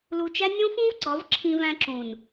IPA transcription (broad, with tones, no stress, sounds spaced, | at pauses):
l u˧ t͡ʃ æ˦ nʲ õ˦ f ũ˦ v ɡ͡ǀ ɒ˨˦ v ǁʰ ĩ˧ v æ̃˧ ǁ ũ˨ n